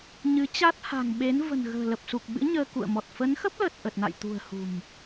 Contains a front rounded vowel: no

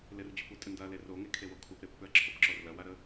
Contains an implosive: no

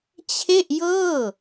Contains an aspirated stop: yes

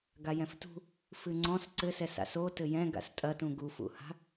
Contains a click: yes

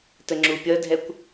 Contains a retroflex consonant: no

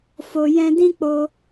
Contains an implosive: no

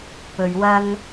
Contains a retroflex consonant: no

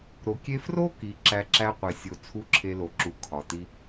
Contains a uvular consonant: yes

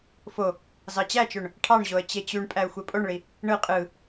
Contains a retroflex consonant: yes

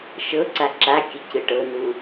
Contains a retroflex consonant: yes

